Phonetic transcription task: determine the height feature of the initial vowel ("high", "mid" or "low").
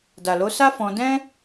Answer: low